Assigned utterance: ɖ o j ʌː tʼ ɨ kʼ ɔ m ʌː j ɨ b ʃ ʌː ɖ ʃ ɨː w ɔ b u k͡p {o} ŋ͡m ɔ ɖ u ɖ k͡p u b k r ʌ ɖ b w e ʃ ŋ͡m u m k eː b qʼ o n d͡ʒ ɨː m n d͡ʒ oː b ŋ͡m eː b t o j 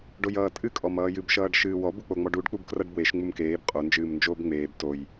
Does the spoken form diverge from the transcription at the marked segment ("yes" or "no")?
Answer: no